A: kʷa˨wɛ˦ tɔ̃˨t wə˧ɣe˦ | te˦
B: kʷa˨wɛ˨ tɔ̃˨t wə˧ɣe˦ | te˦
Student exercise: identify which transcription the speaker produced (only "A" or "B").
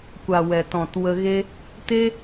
B